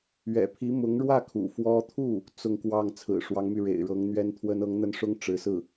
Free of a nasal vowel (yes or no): yes